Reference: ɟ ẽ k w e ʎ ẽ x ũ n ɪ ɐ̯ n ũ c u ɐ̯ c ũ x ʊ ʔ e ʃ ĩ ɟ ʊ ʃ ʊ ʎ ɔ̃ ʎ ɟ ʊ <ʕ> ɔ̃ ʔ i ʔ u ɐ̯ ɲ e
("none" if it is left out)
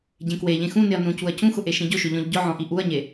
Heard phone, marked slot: ʕ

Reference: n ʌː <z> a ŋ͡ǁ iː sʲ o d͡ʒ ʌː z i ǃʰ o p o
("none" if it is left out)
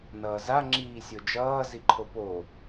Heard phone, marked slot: z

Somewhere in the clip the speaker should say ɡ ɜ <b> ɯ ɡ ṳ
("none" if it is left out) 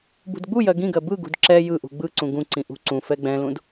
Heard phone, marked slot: b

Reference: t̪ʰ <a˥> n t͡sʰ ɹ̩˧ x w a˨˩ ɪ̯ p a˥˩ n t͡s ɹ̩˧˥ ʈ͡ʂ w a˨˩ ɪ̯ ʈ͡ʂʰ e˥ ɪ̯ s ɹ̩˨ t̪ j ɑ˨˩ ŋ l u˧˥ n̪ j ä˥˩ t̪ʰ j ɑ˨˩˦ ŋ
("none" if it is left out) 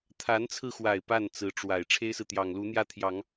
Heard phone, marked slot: a˧˥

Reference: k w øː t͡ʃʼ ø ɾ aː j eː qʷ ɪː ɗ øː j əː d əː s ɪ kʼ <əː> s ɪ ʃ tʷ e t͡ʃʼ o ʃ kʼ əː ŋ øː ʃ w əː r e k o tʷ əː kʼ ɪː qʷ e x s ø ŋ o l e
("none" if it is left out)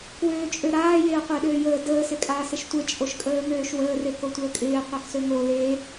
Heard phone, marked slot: aː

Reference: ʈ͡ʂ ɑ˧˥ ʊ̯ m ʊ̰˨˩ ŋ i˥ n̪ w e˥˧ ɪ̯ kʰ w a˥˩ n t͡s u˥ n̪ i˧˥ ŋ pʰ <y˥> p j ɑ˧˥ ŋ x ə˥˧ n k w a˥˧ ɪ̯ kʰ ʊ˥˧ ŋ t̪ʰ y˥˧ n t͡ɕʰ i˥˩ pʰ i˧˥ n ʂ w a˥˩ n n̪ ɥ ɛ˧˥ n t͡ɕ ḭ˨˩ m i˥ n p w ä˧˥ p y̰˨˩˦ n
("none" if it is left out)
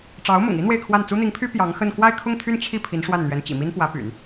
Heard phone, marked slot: y˥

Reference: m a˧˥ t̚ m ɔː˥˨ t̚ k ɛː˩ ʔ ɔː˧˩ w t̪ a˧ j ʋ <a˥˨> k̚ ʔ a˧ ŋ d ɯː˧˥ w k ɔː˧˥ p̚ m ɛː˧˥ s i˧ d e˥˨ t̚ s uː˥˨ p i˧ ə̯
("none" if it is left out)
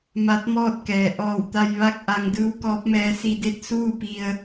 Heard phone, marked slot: a˥˨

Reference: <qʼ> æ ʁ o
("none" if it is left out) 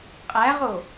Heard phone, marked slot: qʼ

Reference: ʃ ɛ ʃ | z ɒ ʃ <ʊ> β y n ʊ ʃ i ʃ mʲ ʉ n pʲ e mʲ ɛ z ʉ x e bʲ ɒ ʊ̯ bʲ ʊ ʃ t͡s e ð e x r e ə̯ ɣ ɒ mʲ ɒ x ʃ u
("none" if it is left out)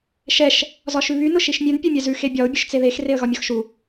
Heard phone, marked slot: ʉ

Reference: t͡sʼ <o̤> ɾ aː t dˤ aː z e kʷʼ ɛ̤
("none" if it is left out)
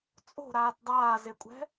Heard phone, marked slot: o̤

